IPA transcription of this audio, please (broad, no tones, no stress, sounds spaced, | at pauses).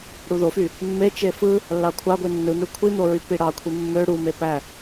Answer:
ɽ u ð o f y | mː e t͡ʃ e f ɯ | lː ɑ kʷʰ ɑ ɡʷ i nː ɯ n̪ ø kʷʰ i n̪ o ɹ y p i ɽ ɑ kʷʰ i mː ø ɽ u m e p æ